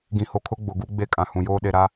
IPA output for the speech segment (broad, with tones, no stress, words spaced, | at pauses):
ɡĩ˨ho˨kʰʊ˦ ɡ͡bʊ˨ɡu˦ɡ͡be˦ kʼã˨hũ˨joː˦ ɗe˨ɾa˦